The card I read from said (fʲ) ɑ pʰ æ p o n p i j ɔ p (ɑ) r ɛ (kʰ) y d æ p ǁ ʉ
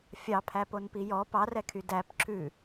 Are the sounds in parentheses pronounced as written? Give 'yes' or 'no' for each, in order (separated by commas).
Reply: yes, yes, yes